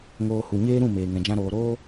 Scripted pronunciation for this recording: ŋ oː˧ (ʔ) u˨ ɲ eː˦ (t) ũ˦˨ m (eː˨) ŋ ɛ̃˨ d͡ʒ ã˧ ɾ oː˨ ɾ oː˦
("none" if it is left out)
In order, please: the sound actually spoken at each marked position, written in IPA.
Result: h, ɾ, eː˨

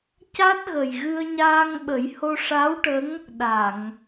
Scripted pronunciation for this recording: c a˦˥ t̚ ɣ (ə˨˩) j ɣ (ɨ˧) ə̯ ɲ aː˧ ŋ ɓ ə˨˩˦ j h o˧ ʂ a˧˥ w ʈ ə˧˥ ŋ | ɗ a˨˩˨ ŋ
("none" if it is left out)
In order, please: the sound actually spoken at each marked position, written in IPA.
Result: ə˨˩, ɨ˧

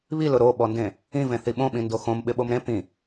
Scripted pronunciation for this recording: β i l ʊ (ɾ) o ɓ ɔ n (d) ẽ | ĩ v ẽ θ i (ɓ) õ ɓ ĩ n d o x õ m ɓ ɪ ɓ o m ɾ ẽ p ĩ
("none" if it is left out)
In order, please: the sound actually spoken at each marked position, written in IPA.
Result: ɾ, d, ɓ

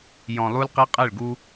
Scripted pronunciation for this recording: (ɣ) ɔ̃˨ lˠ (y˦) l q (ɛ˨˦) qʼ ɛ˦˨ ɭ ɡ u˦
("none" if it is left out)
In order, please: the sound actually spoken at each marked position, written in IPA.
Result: j, u˦, ɛ˦

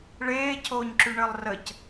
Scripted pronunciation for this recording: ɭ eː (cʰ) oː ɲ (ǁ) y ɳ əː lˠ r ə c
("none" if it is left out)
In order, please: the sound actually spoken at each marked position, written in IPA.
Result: cʰ, ǁ

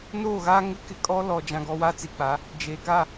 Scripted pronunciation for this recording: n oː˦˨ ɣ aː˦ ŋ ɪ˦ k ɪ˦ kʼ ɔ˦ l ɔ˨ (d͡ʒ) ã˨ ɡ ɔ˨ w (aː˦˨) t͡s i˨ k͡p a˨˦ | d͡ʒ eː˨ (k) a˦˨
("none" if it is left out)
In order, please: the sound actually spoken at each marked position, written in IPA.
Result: d͡ʒ, aː˦, k

